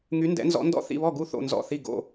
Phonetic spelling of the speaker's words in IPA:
ŋ y˧˥ n d ɛ̰˧˥ n z ɔ̰˧˥ n d ɔ̰˥˨ θ ḭ˥˨ β ɔ˥˨ ɡ u˥˨ θ o̰˥˨ n z ɔ̰˥˨ θ i˥˨ ɡ o̰˥˨

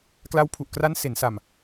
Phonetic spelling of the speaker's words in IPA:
k l a˦˥ w pʰ u˨˩ ʔ k r a˦˥ n s e˩˦ n s a˨˩ m

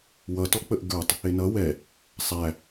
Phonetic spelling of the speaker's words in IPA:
w ʌ t ɔ k͡p ə ʔ ɡ ə˞ tˤ | ɪ n ʌ w ɛ | sˤ æ

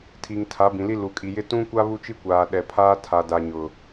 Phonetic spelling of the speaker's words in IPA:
tʰ i˨ ŋ tʰ a˨˦ b ĩ˨ l i˦ l u˨ kʼ i˨ j ɪ˦ t ũ˦ kʷ a˦ β u˦ t͡ʃ i˦ kʷ aː˨ ɗ ɛ˨ pʰ aː˦ tʰ a˨ d a˨ ɲ ʊ˨

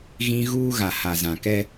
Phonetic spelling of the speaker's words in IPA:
ɣ ĩ˦ ɣ uː˦ ɣ a˨ h a˨ z ã˨ k ɛ˦

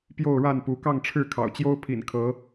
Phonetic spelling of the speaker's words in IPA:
p j o˥˨ ʊ̯ ɻ a˥˨ n p u˨˦ k ɑ˥˨ ŋ ʈ͡ʂʰ ɻ̩˥˨ kʰ ɑ̰˨˩ ʊ̯ t͡ɕ j o˦ ʊ̯ pʰ ḭ˨˩ n kʰ ɤ˨˦

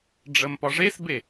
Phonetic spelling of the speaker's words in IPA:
ɖ͡ʐ ə m p ɒ ʐ e s b e

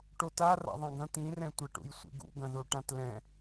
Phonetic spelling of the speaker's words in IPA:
ʈ o t a r a̰ ðˤ ã ɡ ɐ̃ t̪ ĩ r ɛ̃ tʷ a ʈ ṵ j sʷ ḭ ɡ ṵ ɡ ɐ̃ ð o ʈ ã t l ɛ̃

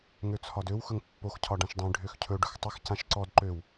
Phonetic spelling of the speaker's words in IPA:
ŋ ø t͡sʰ ɒ d ø w x ɵ ŋ pː o x cʰ ɒ ɖ ã ʃ dˤ ĩ ɖʱ ø x cʰ ɵ ɖ ɵ x tˤ ɪ x c ã ʃ ǀ ɔ d ǃ ø w

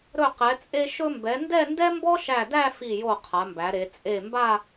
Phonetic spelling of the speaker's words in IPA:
ɾ ɵ˧˩ q ɛ˩˧ t͡sʼ e˧ ʃ ɵ˧ m b ɛ˩˧ n d ɛ˥˧ n d ɛ˥ m b ɔ˥ ʃ æ˧˩ d æ˥˧ f i˧˩ j o˧˩ qʰ a˩˧ m b æ˩˧ ɾ e˩˧ t͡sʼ e˧˩ m b a˥˧

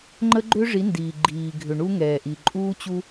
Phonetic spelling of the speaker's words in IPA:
ŋ͡ǃ ə˦ ɡ͡ǃ ʏ˦ ʐ i˨˦ n d iː˨ ɡ͡ǃ iː˨ ɡʱ ʏ˨ ɳ u˦ ŋ ɛː˨ ʔ i˨ ǃʼ uː˦ t͡ɕ u˦

